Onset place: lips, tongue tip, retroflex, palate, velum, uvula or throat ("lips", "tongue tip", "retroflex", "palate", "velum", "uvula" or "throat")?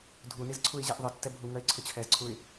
tongue tip